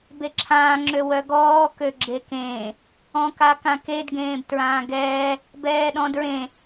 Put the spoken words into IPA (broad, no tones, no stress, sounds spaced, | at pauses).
b e ǁʰ ãː ŋ͡ǁ ø w œ ɡ ɔː k ø ɡ͡ǁ e k ẽː | ɔ̃ k a k ã k e d ɡ ẽː b t ɹ ãː ɡ ɛː | b ɛː ɗ ɔ̃ d ɹ ẽ